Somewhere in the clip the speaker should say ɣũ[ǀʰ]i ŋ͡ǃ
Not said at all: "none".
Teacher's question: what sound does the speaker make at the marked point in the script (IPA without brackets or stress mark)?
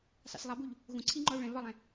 ǀʰ